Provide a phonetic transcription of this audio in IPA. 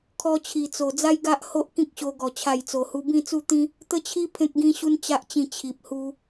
kʰ ɔ˧ t͡ɕʰ i˨˩ t͡s o˨˩ d͡z a˦ j ɡ a˦ ʔ h o˦ ʔ k ĩ˦ k̚ ɕ o˧ ɡ ɔ˨˩ t͡ɕʰ a˥˧ j t͡s o˧ h u˦ b ĩ˥˧ t͡s u˥˧ t̪ ĩ˦ | t̪ ə˥˧ t͡ɕʰ i˦ pʰ ẽ˦ k̚ ɡ ĩ˦ ɕ u˦ n t͡ɕ a˦ ʔ t͡ɕ ĩ˥˧ t͡ɕʰ i˨ p̚ h u˦

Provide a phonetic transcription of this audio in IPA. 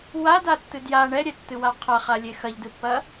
w a d a tː ɨ d j a ɳ ɛ ɾʲ ɛ tː ɨ w a qʰ ɐ χ a lʲ e x ɐ ʎ d ɨ pː ɐ

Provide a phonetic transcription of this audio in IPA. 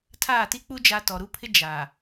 tʰ aː˦˨ t i˦ k͡p u˦ d͡ʒ a˦ t ɔ˨ ɾ u˦ pʰ ɪ˦ d͡ʒ a˨

